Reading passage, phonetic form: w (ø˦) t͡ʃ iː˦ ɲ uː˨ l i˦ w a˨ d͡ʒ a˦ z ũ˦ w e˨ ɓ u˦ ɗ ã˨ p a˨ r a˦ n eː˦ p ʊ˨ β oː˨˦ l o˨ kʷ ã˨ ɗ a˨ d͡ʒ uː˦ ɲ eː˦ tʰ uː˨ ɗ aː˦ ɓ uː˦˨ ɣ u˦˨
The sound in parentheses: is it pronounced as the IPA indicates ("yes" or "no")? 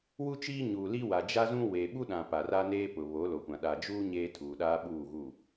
no